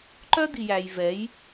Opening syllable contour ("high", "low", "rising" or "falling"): high